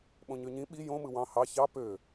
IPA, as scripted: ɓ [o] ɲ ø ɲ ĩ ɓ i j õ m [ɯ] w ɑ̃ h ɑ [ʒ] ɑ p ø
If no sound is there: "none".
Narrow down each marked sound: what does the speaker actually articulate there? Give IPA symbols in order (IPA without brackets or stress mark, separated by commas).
õ, ɯ, ç